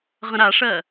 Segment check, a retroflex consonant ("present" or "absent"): present